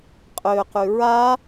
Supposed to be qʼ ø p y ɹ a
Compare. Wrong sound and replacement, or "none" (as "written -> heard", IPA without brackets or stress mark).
p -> q